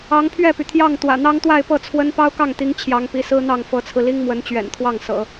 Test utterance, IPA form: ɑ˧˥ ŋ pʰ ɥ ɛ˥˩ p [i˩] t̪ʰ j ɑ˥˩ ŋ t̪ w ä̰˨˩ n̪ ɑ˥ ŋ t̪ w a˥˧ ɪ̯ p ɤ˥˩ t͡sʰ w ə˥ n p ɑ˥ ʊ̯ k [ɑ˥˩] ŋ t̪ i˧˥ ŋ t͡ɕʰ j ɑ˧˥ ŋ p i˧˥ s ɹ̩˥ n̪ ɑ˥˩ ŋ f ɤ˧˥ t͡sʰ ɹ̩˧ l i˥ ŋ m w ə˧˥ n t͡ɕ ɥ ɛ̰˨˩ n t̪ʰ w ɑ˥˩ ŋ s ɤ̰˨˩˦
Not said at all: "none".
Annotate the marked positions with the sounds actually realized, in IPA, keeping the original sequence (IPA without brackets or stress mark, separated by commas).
y˩, ɑ˥˩